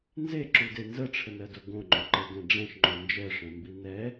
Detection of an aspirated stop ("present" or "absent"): present